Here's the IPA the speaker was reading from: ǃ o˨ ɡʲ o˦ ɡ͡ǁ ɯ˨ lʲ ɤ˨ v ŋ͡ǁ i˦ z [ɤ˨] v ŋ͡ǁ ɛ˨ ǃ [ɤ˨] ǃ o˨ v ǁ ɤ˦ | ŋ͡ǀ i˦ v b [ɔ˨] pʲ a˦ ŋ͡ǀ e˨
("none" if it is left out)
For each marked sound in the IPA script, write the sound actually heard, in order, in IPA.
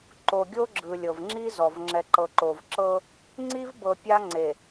ɔ˨, ɤ˨, ɤ˨

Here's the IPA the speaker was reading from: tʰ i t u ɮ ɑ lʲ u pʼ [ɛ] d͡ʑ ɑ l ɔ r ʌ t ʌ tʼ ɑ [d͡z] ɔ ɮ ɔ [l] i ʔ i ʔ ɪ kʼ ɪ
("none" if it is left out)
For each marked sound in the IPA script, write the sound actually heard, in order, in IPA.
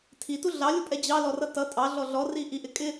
ɛ, ɮ, r

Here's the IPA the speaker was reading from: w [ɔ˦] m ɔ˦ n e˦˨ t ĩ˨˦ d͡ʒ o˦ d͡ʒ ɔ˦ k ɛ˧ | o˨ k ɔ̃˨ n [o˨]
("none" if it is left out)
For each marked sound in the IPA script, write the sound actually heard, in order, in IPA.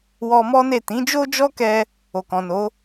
ɔ˧, o˨˦

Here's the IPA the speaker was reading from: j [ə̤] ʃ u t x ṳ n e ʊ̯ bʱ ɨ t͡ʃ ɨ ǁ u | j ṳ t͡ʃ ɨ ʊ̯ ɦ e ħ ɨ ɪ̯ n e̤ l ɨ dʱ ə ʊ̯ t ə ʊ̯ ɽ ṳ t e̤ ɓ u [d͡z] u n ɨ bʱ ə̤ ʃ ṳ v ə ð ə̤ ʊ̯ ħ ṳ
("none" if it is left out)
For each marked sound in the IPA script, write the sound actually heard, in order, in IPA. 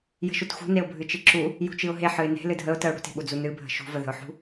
ə̤, d͡z

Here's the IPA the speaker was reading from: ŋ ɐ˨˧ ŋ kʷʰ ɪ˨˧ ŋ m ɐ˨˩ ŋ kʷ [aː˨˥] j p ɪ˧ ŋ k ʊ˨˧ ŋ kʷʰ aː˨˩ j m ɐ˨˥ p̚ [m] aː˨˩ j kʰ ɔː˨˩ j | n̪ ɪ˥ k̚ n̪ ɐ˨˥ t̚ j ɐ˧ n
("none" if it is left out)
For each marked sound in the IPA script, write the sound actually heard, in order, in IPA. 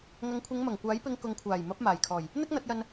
aː˨˥, m

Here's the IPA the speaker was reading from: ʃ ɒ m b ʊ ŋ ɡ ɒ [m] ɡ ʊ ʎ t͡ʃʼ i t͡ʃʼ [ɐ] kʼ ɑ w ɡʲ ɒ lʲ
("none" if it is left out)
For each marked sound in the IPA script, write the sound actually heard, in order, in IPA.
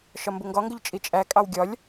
ŋ, æ

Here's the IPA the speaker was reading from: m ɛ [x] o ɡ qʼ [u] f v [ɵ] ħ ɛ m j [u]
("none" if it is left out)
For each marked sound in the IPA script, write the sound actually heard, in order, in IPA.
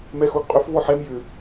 x, ʏ, ɔ, ʏ

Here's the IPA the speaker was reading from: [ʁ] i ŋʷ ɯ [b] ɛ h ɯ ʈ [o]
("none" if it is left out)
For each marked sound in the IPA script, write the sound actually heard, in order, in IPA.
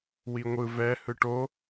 w, v, o

